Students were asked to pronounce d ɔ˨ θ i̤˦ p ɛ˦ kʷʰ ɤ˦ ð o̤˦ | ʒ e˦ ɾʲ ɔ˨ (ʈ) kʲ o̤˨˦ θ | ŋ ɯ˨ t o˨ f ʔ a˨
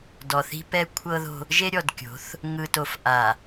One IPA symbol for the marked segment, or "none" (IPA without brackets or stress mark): d